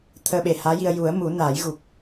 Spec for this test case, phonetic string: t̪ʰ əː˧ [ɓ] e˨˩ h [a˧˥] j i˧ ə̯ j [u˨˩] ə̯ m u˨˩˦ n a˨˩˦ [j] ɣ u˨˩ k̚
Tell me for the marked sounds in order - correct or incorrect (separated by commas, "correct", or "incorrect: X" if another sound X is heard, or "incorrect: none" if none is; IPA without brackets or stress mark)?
correct, incorrect: aː˧˥, incorrect: u˨˩˦, correct